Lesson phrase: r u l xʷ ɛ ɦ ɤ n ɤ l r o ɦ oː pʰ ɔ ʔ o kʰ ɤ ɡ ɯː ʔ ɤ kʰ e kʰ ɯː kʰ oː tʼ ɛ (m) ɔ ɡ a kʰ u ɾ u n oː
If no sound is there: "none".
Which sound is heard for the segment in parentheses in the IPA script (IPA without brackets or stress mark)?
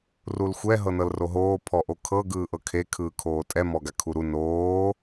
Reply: m